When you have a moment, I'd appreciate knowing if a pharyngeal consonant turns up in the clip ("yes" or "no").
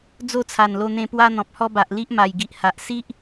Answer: no